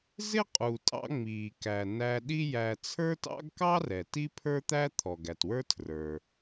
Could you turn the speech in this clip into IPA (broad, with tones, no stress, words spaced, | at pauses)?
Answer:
zɪ˥qʼu˩tʼɑ̰˧ ŋ͡miː˩kæ˩ næ˧ɗi˥jæ˧ t͡sʰə˞˥tɑ̰˥ɡ kɑ˥rɛ˩ ti˥pʰə˞˥ t̪æ˥ t̪ʰɔ˩ɡæ˩twə˞˥ tʰrə˞˩